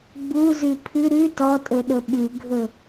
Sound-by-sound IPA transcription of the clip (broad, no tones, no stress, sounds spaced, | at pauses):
ɡ͡b u z ʉ pʰ ʉ ɾ ʉ t ɔ tʼ ɵ ɗ ɵ ɓ ʉ ɡʱ ɵ